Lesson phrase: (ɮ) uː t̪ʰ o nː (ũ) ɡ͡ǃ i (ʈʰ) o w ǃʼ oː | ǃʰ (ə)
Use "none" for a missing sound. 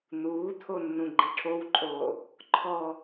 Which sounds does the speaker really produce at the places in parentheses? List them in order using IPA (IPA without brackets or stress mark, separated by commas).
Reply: n̪, ũ, ʈʰ, ɔ